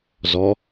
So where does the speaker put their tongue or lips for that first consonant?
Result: tongue tip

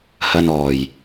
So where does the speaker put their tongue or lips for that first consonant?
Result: throat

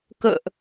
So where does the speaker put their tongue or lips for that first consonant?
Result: velum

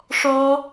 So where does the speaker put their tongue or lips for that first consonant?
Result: retroflex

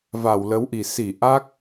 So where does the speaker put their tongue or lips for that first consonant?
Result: lips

